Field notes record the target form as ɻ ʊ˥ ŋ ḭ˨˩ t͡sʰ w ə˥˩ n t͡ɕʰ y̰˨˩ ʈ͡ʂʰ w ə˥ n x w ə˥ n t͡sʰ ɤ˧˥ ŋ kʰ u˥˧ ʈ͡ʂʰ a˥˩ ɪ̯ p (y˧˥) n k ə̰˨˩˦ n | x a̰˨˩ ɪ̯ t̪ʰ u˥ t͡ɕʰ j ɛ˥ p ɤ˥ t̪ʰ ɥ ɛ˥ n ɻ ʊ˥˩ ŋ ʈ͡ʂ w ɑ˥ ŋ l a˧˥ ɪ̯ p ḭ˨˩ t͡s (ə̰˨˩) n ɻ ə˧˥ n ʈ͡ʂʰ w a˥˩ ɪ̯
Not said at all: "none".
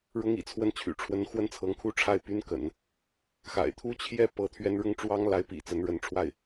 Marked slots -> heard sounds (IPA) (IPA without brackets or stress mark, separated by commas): y˥, ə˧˥